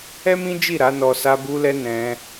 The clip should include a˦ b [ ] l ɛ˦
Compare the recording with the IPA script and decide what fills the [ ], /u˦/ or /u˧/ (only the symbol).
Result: u˦